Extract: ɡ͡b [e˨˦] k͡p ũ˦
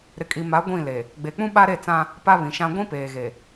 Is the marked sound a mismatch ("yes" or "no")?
yes